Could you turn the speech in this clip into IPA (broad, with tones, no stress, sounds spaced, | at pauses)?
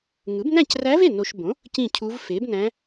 ŋ ɯ˩˥ b n æ̃˥˩ c r æ˧˥ v e˥˩ n o˨ ʃ b õ˩˥ | c ĩ˥˩ cʰ u˧˥ v f e˩˥ b n æ̃˧˥